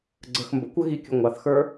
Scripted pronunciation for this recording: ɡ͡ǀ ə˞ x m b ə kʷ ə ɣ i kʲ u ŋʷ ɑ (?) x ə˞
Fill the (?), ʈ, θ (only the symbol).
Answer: θ